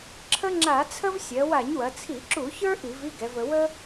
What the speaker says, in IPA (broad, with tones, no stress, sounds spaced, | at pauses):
ǁʰ ə˦ ŋ͡ǁ a˧˩˧ t͡sʰ ə˦ v sʲ ɜ˩˧ w a˧˩˧ ɲ w ɐ˩˧ t͡sʰ i˧˩˧ ǁ u˧˩˧ ç ə˞˦ ʔ i˧˩˧ v i˦ ɡ ɛ˩˧ v ə˩˧ w ə˦